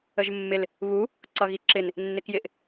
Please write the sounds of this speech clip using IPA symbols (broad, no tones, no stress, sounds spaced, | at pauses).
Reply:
ə ʒ mː ɪ l | β u | ǀ ʌ ɣ i ǁ ɪ n | nː ɪ k j ɪ ʔ